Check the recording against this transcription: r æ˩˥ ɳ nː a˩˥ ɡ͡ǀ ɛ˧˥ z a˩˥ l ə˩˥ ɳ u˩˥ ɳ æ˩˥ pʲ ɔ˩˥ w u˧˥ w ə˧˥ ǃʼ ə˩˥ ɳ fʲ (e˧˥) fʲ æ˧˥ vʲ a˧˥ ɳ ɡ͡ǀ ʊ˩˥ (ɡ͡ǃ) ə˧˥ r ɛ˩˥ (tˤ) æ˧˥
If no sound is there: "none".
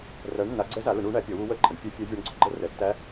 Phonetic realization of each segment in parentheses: ɛ˧˥, ɡ͡ǃ, tː

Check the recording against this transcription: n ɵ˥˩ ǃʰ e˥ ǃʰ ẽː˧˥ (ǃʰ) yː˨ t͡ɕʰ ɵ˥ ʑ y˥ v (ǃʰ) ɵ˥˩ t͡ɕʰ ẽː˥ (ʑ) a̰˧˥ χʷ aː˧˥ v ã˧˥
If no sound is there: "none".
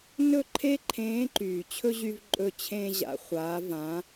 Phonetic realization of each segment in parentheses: ǃ, ǃʼ, ʑ

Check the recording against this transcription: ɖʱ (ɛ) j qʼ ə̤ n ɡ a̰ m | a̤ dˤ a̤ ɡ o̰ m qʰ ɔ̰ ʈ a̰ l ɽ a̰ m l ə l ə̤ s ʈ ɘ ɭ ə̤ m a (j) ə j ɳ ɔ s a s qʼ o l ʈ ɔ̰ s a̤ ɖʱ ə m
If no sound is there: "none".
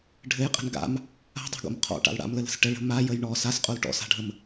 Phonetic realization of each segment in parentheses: ɘ, j

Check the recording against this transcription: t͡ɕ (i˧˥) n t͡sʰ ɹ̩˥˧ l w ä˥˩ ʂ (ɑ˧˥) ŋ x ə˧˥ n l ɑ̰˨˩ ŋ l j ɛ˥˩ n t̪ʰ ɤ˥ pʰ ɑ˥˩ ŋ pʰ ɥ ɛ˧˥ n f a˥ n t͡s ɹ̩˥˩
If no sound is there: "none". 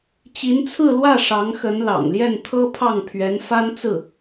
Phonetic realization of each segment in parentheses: i˧˥, ɑ˧˥

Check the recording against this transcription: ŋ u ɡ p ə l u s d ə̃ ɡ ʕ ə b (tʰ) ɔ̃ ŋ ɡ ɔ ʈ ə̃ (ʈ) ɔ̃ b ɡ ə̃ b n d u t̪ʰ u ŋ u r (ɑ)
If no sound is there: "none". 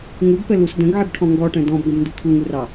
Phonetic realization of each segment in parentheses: ʈʰ, d, ɑ

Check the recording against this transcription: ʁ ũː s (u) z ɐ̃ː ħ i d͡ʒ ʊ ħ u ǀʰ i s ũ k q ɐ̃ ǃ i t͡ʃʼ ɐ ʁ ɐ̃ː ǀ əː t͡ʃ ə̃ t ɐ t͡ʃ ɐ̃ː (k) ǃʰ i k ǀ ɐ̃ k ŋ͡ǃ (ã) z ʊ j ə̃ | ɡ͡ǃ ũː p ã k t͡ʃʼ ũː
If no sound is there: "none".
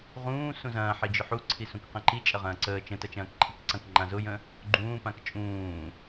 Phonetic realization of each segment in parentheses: ũ, k, ã

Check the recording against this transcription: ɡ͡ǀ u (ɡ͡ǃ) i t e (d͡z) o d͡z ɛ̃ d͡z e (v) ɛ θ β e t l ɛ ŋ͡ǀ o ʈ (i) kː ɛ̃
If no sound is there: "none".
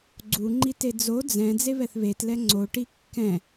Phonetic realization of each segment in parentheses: ŋ͡ǃ, d͡z, β, i

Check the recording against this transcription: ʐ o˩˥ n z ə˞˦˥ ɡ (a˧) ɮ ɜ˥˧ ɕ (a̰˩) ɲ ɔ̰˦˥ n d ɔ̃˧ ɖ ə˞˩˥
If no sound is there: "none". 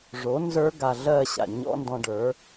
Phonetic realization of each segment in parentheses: a˧, a̰˩

